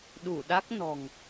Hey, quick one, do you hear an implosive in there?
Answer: yes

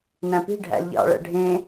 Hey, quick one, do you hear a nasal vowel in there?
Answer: yes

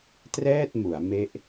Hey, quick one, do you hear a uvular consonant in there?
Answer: no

